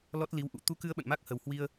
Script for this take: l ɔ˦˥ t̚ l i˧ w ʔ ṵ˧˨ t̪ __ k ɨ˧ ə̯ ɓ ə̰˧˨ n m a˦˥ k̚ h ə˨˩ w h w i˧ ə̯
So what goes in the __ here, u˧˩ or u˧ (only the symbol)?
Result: u˧